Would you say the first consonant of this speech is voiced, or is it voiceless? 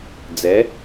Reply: voiced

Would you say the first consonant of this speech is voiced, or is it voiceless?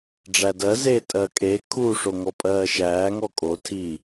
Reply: voiced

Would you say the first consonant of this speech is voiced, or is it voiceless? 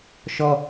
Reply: voiceless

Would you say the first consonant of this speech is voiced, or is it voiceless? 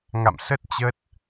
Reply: voiced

